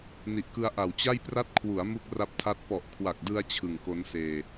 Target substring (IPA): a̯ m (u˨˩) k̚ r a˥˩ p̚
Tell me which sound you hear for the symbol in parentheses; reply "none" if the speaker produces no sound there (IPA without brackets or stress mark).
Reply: u˥˩